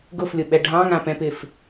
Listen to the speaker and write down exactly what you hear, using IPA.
ɡ ʊ f lʲ ʊ ɓ ɛ ɖʱ ɑ̃ ŋ ã p ɛ̃ p ɪ f

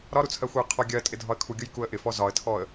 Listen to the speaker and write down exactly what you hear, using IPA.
ɾ ɒ ɾ u t͡sʰ ɜ xʷ ɪ ə̯ qʰ ɔ ɡʲ ɜ tʼ ɪ dʱ ɒ ə̯ kʰ u ɡʲ ʊ j k u ə̯ ʔ ɪ f ɔ z ɒ ə̯ tʰ ɔ ə̯

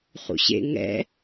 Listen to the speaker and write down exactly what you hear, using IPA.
χ ṵ ɕ ḛ ŋ ɛ̰

